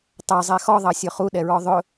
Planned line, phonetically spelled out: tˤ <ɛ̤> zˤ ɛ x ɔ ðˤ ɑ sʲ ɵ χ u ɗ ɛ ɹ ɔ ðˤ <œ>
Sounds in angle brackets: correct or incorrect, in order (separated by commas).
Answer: incorrect, incorrect